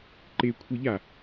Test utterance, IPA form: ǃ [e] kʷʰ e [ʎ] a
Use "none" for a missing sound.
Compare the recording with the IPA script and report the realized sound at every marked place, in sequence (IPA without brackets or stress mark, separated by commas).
e, ʎ